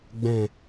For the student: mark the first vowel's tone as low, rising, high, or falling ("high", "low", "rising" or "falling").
low